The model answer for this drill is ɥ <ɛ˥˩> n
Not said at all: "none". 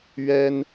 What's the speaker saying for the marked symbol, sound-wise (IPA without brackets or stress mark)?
ɛ˥